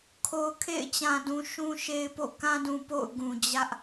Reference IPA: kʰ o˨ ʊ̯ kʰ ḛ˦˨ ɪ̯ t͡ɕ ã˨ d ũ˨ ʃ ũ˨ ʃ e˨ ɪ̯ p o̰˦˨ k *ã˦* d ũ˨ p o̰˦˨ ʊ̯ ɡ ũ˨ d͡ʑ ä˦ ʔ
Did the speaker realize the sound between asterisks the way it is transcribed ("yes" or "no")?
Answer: yes